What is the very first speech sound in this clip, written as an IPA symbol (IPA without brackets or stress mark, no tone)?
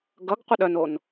ɡ